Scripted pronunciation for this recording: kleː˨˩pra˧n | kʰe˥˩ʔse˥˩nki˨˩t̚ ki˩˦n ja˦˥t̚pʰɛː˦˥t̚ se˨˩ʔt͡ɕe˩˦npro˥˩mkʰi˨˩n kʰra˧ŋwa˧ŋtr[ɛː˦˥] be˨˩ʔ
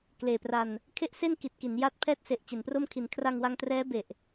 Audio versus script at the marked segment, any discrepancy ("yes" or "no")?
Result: no